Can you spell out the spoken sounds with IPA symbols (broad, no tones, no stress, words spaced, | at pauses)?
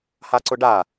haǀʊɖa